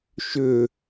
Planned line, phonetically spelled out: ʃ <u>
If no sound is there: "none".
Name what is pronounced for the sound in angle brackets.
ʏ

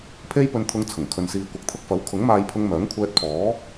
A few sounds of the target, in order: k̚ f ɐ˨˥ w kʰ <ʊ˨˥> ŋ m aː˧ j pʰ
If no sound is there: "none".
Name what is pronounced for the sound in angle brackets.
ʊ˨˥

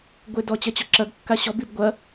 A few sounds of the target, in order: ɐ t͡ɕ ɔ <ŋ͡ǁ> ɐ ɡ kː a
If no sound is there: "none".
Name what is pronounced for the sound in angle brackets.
ǁ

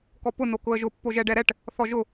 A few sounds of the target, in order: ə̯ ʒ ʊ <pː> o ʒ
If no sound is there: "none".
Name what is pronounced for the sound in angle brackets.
pː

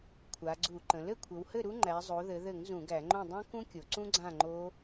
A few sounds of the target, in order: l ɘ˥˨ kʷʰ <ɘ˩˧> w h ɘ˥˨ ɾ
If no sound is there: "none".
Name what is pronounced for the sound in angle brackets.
ɘ˩˧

